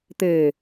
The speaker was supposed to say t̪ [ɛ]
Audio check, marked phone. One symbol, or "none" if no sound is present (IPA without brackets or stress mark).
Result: e